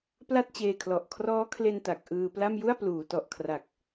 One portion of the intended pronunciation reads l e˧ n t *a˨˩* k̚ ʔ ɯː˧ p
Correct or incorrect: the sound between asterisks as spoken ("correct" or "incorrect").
correct